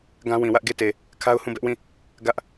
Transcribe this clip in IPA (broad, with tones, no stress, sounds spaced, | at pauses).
ɡ ã˦ w ĩ˨ w ä˦ ʔ ɡ e˦˨ t e˨ | kʰ a˦ ʊ̯ h ũ˦˨ b ɛ˦ ʔ w ĩ˦˨ | ɡ ä˦ ʔ